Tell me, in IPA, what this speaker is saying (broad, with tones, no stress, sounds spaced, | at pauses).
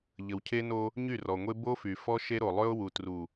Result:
ʎ ə˨ w cʰ e˦ n o˦ | ɲ y˦˨ r ɔ˨ ŋʷ e˦ b o˦ f y˨ f ɔ˦ ʃ e˦ ɾ o˨ lˠ ø˦ ʊ̯ w u˨ t r u˨